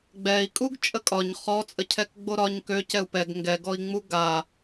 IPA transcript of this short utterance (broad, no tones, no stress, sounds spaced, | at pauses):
ɡ͡b ɛ i̯ kʼ u ɡ t͡ʃʼ ə kʼ ɒ ɲ χ ɔ t͡sʼ ə cʰ ɛ k ɡ͡b o ɾ ɒ ɲ k ø c ɛ u̯ p ɛ ɡ ŋ ɡ ɛ ɡ ɔ i̯ ŋ͡m u ɡ a